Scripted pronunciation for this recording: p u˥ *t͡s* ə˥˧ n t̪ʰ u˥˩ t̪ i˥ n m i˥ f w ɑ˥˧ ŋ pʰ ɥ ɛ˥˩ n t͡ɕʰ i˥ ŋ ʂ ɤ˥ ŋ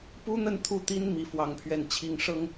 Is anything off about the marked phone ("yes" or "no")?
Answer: yes